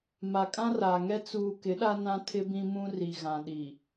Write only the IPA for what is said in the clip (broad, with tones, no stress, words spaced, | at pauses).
ma˨kʼã˦raː˨ŋɛ˦ t͡suː˨ kɪ˨˦ɗa˦ nã˦ tʰɪ˦bĩ˦ mũ˦ri˨ ɣã˨ɗi˨